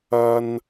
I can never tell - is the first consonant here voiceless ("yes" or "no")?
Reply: no